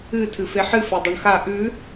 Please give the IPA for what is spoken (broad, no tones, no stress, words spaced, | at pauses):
ɨ tʰɨfeħɨ fedˤɵɳxa ʔʉ